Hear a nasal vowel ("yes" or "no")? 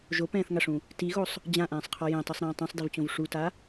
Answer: yes